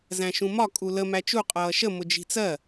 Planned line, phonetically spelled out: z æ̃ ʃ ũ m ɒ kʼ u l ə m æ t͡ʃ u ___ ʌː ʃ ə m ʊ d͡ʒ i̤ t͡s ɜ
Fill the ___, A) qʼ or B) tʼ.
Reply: A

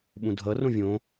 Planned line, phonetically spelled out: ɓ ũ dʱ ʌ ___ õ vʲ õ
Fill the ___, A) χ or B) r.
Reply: B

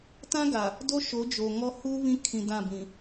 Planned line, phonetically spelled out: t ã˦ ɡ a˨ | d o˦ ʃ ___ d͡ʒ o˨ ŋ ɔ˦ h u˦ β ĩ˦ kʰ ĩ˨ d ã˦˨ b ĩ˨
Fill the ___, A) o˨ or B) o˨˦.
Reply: B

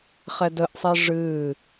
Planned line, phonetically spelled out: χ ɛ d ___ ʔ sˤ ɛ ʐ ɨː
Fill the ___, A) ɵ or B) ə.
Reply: B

